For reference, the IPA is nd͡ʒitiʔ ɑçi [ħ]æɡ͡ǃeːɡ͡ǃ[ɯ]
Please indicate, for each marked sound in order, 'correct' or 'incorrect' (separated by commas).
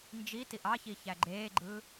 incorrect, correct